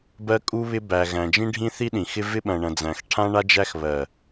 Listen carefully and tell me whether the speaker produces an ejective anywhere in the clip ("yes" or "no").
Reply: yes